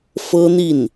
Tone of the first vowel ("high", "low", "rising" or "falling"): high